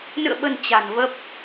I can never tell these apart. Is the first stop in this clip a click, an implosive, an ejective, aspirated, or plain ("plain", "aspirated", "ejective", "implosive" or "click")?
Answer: implosive